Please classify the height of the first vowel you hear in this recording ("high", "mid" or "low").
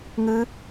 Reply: high